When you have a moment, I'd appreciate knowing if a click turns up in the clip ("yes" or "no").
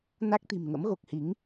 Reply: no